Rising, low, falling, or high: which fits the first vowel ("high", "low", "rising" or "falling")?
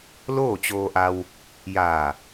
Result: falling